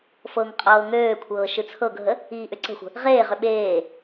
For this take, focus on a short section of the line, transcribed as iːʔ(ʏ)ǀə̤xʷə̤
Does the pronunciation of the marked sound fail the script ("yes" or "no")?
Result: no